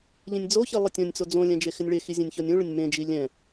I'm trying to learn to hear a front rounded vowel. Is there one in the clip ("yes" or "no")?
no